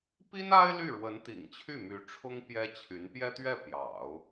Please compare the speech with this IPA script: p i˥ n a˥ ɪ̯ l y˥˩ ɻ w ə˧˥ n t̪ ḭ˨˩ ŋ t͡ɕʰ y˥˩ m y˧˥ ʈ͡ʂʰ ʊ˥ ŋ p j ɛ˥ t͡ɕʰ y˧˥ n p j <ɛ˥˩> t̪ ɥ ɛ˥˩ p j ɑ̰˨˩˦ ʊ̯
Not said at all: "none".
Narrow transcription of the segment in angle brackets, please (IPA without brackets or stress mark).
ɛ˥